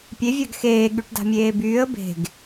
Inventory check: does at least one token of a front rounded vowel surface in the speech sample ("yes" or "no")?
yes